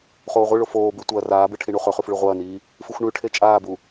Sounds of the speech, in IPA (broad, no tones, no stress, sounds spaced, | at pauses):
χ oː ʁʷ ɨ ɭ o f oː b ʉ tʷ ɐː r aː b ɨ ʈʰ i ɳ u χ ɵ χ ʉ f ɭ ʉ ʁʷ ɐː n iː | f ɨ xʷ ɳ ʉ ʈʰ e t͡ʃʼ aː b u